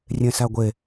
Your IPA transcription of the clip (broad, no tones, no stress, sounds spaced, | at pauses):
rʲ ẽ s æ ɡʷ e